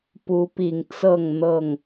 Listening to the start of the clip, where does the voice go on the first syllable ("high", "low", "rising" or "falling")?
rising